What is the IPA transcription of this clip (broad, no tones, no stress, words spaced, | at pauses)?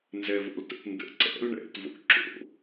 nzɛvo̰ltə̰tndə̰ ǀɛ̰l ɳɛ̰tvo̰ ǁo̰